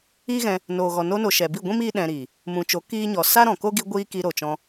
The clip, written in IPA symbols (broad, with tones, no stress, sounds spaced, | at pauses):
iː˦ ɣ ɛ̃˧ | n oː˨ ɣ ɔ˨ n o˧ n o˨ ʃ ɛ˨ b i˦˨ ɡʷ ĩ˦ m iː˦ ɗ ɛ̃˧ ɾ iː˨ | m ũ˨ t͡ʃ o˨˦ k iː˦ ɲ ɔ˨ s a˦ ɾ ɔ̃˨ k o˦ ɡ i˧ ɡʷ iː˦ k i˧ ɾ o˨ t͡ʃ ɔ̃˧